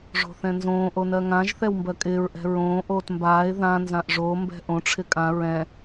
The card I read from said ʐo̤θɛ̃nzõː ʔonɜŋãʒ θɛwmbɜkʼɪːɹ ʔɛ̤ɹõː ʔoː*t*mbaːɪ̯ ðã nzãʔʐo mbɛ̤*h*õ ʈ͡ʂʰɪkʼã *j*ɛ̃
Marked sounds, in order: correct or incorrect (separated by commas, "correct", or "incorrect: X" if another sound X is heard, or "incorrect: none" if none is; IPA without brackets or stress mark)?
correct, incorrect: ʔ, incorrect: ɹ